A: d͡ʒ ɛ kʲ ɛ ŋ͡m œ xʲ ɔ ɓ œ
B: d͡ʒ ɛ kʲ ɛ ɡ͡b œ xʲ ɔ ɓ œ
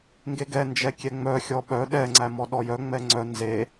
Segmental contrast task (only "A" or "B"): A